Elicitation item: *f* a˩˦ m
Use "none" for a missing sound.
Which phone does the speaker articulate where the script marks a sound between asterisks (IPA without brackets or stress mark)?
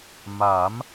m